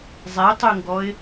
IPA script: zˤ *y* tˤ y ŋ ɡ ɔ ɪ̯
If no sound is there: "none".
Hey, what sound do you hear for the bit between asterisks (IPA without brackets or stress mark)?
e